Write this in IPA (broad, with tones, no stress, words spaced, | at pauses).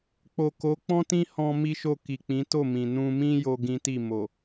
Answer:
k͡po˨ko˨˦k͡pɔ̃˦tĩ˦ hɔ̃˦mi˦ʃo˦˨ ki˨k͡pĩ˨˦ to˦˨mĩ˨ nũ˧mĩ˦ jo˦ɡĩ˦ti˦˨ mo˨